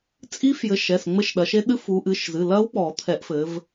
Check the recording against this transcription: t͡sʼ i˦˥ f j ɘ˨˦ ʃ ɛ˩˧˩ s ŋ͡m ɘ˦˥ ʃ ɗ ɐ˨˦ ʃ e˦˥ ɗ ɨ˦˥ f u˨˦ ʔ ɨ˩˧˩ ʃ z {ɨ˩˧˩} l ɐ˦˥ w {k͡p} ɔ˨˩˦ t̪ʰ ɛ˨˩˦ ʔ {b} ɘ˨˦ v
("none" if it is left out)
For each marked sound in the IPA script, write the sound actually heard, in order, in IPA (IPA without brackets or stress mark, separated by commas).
ɨ˩˧˩, k͡p, f